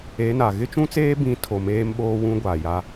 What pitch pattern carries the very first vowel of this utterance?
rising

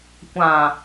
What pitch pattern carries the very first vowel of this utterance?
low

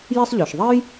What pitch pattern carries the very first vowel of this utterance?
high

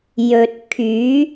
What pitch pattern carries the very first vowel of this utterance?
low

